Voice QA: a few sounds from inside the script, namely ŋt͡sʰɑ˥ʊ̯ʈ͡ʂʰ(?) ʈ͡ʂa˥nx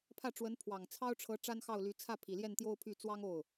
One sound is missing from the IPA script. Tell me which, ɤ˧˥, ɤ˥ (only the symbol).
ɤ˧˥